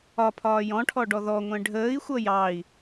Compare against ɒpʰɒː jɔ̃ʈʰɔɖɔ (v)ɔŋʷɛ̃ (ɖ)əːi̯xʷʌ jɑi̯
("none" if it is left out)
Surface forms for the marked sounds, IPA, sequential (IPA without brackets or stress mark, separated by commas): ð, ɖʱ